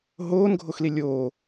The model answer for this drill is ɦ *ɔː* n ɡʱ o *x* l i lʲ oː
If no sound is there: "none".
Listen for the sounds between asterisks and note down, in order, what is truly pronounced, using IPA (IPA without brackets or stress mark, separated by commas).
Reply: oː, x